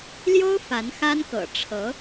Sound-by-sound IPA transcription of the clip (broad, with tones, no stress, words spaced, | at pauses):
ljo˥ʊ̯ fa˧˥nxa˥nkɤ̰˨˩ ʈ͡ʂʰɤ˧˥